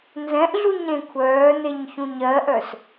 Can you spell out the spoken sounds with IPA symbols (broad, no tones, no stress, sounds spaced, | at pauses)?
n z ɛ̃ ʔ ɮ u ɲ ɾ ẽ kʷʰ œː n e ɲ ç ũ ɲ ɜ ʔ œ s